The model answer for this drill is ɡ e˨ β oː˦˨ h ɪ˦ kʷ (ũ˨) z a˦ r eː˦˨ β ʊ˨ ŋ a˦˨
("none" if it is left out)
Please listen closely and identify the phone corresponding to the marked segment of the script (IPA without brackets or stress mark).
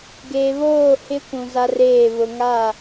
ũ˨